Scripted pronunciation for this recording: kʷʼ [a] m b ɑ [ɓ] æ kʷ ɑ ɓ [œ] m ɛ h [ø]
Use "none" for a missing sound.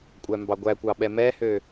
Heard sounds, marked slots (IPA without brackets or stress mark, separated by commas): æ, ɡʷ, ɛ, ø